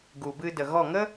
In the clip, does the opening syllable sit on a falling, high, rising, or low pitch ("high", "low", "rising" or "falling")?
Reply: low